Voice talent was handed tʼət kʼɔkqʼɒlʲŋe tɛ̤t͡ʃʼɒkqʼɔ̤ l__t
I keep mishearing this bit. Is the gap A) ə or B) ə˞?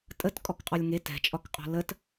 A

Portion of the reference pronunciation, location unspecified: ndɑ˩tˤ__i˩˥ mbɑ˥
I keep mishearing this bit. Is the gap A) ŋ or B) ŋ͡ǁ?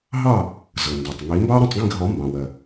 A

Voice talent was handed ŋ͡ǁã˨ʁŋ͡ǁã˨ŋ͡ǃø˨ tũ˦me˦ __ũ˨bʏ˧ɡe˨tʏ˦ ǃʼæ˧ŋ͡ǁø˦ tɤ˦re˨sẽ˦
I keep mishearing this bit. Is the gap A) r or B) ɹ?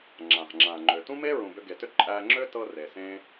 B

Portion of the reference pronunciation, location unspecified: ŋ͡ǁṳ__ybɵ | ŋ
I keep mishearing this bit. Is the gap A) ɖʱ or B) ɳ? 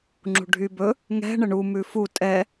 A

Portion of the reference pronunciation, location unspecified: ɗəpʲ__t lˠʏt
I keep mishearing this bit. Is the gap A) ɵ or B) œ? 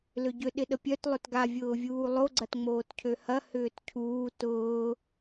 B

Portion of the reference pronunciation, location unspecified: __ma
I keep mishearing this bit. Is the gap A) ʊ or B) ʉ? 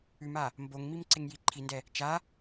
B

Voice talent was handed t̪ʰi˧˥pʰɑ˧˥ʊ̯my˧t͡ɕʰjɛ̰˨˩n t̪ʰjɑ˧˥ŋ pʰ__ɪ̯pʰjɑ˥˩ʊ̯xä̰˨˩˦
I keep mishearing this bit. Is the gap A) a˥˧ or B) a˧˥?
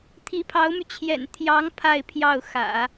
A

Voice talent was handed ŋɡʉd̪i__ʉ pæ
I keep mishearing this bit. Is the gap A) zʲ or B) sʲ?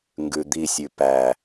B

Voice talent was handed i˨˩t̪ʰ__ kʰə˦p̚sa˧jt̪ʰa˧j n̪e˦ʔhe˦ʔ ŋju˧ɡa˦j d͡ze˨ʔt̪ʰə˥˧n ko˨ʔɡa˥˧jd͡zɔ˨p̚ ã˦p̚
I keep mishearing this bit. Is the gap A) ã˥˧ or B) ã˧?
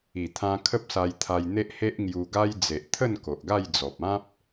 B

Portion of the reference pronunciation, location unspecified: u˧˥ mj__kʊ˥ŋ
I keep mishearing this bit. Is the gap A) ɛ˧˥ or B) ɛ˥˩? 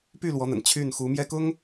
B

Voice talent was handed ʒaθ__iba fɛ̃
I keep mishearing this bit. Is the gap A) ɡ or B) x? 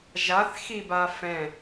B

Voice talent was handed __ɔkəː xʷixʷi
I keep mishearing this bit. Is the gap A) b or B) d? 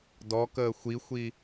B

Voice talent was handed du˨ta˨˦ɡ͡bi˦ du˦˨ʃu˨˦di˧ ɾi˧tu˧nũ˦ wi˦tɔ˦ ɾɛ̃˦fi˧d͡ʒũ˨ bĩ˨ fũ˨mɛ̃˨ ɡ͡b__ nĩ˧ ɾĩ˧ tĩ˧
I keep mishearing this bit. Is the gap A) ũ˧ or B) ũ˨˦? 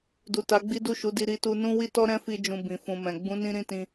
B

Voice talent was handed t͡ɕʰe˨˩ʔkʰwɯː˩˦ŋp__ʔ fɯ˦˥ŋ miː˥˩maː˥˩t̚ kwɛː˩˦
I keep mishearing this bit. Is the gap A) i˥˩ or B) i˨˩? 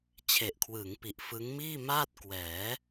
B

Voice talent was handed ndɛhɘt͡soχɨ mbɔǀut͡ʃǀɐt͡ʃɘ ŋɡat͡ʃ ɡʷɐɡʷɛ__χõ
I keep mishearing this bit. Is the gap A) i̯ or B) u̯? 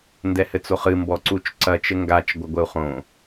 B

